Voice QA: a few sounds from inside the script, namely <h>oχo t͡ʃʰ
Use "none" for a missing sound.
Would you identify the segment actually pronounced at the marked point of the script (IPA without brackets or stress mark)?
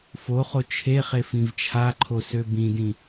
f